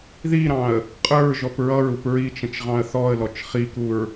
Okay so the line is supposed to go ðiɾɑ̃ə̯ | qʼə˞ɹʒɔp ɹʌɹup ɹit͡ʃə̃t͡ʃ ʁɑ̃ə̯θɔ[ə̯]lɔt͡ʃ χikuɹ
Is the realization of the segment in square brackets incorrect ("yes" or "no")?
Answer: no